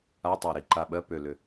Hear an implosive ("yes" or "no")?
yes